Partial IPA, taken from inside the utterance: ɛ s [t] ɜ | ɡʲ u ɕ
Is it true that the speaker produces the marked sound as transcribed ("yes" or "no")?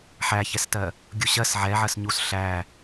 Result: yes